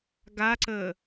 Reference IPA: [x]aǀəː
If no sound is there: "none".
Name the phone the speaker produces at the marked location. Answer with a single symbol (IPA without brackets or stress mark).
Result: ɡ